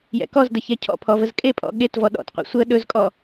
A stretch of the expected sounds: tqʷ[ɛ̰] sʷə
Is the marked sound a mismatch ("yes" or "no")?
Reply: no